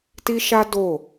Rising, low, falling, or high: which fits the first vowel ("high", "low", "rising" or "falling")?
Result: high